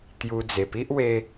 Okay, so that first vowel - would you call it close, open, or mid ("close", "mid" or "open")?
close